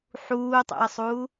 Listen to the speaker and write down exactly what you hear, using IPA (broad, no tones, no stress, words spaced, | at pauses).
ħuːtˤṵə̯sˤuː